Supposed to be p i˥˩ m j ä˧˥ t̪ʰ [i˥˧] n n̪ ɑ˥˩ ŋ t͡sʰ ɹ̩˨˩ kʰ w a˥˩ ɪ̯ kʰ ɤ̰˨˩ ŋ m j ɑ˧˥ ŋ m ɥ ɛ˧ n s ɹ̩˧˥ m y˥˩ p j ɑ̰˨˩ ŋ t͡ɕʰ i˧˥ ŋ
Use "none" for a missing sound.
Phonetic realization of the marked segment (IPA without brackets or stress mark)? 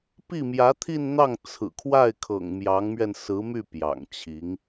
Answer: i˥˧